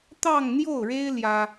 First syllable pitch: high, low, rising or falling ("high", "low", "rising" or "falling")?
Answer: falling